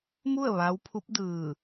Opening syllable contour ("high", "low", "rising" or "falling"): falling